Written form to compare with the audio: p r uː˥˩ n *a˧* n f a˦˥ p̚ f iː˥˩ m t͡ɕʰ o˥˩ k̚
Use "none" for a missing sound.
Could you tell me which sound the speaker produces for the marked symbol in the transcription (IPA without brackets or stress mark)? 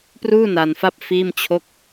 a˧